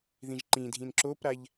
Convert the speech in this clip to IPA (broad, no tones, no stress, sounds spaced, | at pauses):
ð ĩ ʒ ǃ ĩ dʱ ĩ n ǁ o p ɾ a ʎ